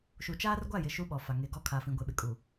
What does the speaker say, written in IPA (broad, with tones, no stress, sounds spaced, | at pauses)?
ʃ u˨ t͡ʃ aː˦ r ɡʷ a˦˨ j ɪ˨ ʃ u˦ ɓ ɔ˨ f a˨ ŋ e˨ ɡ ɔ˦ kʰ a˨ f ĩ˨ ɡʷ e˨ ɓ ɪ˨ kʼ u˨